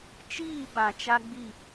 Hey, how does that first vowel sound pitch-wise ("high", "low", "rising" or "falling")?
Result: falling